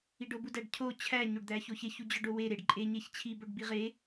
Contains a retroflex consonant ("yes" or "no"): yes